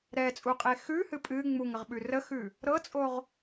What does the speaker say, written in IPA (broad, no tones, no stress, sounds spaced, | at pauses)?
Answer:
ɾ ɛ t͡sʼ u qʼ e x ʉ h ɨ pʼ ɨ ŋ͡m u ŋ ə ʁ ɓ ʉ r ə x ʉ | ɾ ɤ t͡sʼ o ʁ